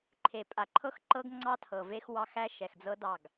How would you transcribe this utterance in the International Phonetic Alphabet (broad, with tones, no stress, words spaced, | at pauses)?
ǃʰe˨pʼa˨ǃʰɤ˦x ǃɤ˦ɡŋ͡ǀɑ˦ tʰɤ˨ve˦x wɑ˦xæ˦ ʃɛ˨xd͡zɤ˦ dɑ˦˨ɡ